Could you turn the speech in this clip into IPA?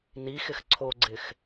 nixɪx ǀʰoɡ͡ǀɪx

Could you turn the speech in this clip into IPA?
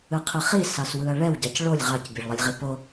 ɯqʰɯχi sɑswɯɐ̯ɭɛw ɟɑcɭolʲ ʁɑc bʲeɭlˠilʲʁipo

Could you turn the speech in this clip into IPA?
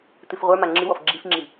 t̪ɨfʁʷə˞ma ŋ͡ǁɨwɔf ɡ͡ǁifŋ͡ǁi

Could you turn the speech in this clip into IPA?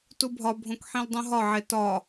tubʱɒbʱõk ħĩldˤũɦɒʕe tɒ

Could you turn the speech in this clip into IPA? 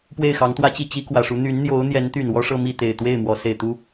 pwe˥˩ɪ̯xɑ˧˥ŋt̪wä˥t͡ɕi˥˩ t͡ɕi˥kwä˨˩ʂu˧˥ n̪y˧˥nn̪jo˧˥ʊ̯n̪jɛ˧˥nt̪y˨˩n wɔ˥ʂɤ˥˧mi˥˩ t̪e˨˩ɪ̯t̪we˥˩ɪ̯ mwɔ˧˥se˨˩ɪ̯t̪u˥

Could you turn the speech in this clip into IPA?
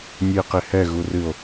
nʲɨe̯qehɛ ɣurɨo̯

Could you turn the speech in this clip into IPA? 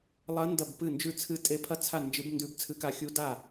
lˠɐ˦˥ ndɐ˥˧bpɨ˥˧nd͡ʒʉ˥˧ t͡sʰɨ˦˥tʼe˦˥pʰɐ˥˧t͡sʰa˥˧ nd͡ʒɨ˦˥b ndʉ˦˥bt͡sʰɨ˦˥ka˦˥ xʲu˦˥da˥˧

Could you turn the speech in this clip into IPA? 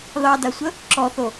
ðɑdasʷə | ǁɔθo

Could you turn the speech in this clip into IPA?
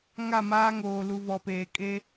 ŋa˦˨maː˦ŋoː˨ lu˨vɔ˨peː˨ kʼe˦

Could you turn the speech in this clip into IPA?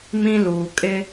mĩ˦luː˨kʼɪ˦

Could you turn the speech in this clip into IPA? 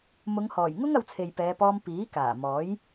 mʊ˨˧ŋhɔː˨˩jŋʊ˥ŋ ɐ˧wt͡sʰe˨jpɛː˨˧pɔː˧m piː˨˥kaː˨˩ mɔː˨˥j

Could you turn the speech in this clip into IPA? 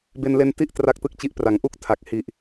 be˧nle˦˥nti˥˩ʔ tra˥˩k̚tɯ˥˩k̚t͡ɕi˦˥ʔ pra˩˦ŋʔu˦˥k̚tʰa˨˩k̚ hi˨˩ʔ

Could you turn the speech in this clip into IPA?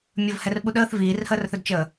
mʲəvhɛr ɓuɗəːθ viːrhəːrθɵdt͡ʃəː

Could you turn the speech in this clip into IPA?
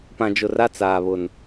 pã˨d͡ʒʊ˨ra˦ t͡saː˨βʊ˨n

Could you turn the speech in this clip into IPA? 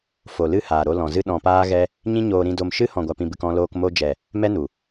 fo˨lɨ˦˨ haː˨ɾo˧ lɔ̃˨zɨ˦ ɗɔ̃˧paː˦ɣɛ˦ | ɲĩ˦ɲoː˧ɾĩ˧do˧m ʃɨ˦ hɔ̃˨ɡʷa˨pĩ˨bɨ˨k ɔ̃˧loː˧k mo˧d͡ʒɛ˨ | mɛ˦nu˨

